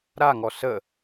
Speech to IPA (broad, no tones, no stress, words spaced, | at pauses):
ɾaŋɔ sə